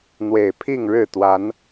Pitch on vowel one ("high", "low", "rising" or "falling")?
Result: low